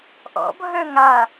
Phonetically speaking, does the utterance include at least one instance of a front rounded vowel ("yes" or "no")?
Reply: yes